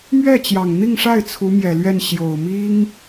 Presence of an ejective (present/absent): absent